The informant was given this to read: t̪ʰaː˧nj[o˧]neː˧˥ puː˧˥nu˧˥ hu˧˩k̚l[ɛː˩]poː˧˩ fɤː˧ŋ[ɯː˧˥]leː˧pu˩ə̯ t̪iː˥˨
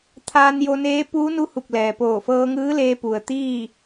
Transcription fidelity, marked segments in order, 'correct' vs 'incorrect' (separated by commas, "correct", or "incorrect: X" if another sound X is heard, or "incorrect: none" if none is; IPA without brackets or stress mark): correct, correct, correct